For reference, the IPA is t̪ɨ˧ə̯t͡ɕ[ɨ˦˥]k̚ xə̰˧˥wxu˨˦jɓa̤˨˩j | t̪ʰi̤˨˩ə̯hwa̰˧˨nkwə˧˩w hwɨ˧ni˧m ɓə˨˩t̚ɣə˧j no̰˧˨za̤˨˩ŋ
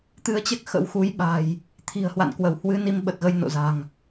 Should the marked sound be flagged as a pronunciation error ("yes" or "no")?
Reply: yes